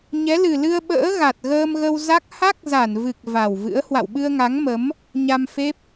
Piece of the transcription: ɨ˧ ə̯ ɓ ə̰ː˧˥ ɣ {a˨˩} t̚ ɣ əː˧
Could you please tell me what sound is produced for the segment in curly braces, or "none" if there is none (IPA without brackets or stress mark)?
a˨˩